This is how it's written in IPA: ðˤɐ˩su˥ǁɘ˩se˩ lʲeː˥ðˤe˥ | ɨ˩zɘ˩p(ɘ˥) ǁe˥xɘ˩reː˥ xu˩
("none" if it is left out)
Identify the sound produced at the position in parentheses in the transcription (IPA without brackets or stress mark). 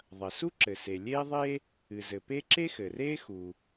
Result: e˥